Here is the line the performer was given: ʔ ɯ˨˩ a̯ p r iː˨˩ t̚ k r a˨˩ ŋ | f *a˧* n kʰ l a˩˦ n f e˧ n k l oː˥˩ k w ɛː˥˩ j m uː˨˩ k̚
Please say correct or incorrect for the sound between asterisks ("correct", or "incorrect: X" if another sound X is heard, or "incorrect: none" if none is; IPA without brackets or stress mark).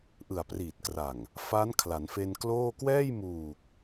incorrect: a˦˥